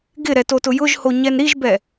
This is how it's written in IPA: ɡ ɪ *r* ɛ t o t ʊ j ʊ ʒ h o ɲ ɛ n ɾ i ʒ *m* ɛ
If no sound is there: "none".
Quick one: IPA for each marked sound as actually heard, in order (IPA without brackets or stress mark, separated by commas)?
ɾ, b